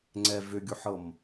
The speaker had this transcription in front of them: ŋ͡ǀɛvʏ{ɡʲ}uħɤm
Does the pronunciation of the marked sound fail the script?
no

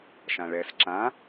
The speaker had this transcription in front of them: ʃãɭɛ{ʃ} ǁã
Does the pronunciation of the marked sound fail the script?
yes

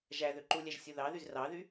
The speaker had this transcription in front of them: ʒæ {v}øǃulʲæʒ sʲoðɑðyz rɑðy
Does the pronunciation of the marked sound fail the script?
yes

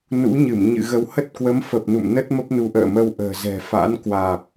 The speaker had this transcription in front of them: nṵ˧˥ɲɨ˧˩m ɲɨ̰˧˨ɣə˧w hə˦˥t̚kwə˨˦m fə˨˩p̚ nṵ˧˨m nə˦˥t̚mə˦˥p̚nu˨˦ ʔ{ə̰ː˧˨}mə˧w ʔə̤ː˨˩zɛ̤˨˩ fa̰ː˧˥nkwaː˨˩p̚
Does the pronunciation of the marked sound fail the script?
no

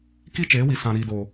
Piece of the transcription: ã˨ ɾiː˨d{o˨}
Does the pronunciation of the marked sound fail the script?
no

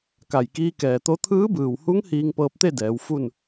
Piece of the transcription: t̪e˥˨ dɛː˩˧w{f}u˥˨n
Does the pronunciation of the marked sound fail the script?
no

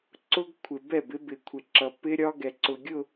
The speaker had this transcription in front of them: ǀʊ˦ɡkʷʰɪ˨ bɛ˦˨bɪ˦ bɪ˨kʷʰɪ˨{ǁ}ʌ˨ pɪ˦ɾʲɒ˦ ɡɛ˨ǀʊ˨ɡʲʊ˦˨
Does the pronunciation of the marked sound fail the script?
no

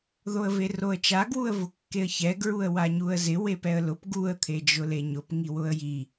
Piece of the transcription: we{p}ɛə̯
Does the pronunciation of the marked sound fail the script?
no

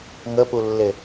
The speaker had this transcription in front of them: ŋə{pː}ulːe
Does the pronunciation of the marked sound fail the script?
yes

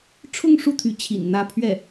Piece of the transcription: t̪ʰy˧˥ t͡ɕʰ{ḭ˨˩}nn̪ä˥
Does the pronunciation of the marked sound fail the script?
no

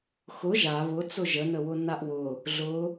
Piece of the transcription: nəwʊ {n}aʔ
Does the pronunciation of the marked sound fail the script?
no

